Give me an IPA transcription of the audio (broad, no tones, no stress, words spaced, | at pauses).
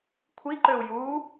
kʷʰiǃøu̯ ju